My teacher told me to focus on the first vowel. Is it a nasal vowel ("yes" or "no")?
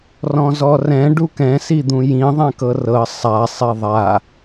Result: yes